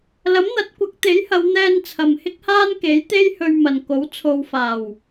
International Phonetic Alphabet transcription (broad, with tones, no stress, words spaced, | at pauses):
lɐ˨˥mn̪ɐ˨˥t̚kʷɐ˨˥k̚t̪e˨˥j hɐ˨˧wn̪ɛː˧n t͡sʰɐ˨mhɪ˥k̚haː˥nke˨˥j t̪e˥jhɵ˧ɥmɐ˨n ko˨˥w t͡sʰo˨wfaː˨˩w